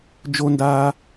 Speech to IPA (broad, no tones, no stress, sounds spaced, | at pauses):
d͡ʒ o n d aː